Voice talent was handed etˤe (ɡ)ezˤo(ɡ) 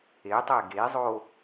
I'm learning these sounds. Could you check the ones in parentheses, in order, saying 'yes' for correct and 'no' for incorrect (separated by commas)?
yes, no